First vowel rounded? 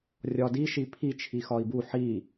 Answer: yes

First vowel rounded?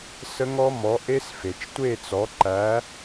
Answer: no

